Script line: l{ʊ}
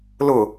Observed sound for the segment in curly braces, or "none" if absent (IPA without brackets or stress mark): ʊ